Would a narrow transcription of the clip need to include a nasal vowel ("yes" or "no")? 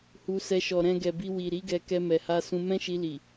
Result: yes